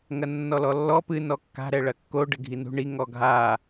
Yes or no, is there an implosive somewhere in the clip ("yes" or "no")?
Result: no